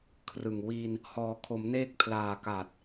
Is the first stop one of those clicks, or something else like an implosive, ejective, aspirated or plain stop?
aspirated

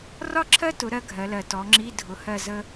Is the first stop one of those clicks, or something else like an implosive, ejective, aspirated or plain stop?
click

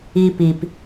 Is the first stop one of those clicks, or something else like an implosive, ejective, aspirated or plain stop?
plain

